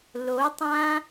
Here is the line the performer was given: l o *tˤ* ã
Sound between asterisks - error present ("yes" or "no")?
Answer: no